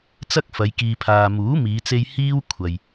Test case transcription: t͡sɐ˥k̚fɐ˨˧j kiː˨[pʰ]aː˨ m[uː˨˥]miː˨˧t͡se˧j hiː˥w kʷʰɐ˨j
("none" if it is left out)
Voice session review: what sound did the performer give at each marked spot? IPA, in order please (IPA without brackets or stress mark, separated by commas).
pʰ, uː˨˥